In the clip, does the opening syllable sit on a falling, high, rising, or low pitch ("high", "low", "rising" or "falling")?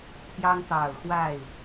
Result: high